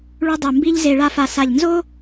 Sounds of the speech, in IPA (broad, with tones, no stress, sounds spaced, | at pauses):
ɭ u˥ dˤ ɨ˧˩ m b i˥ ʎ z e˧ ɭ a˥˧ f a˧ s a˧˩ ʎ n z o˥